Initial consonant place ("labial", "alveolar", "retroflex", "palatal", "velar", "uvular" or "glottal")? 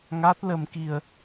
velar